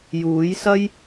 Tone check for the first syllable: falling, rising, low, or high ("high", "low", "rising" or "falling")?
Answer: rising